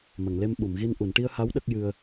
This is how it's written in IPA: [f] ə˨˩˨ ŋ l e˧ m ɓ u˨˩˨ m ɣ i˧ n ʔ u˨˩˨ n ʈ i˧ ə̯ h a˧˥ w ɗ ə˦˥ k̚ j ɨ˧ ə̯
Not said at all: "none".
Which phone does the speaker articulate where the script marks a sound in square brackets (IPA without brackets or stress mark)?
m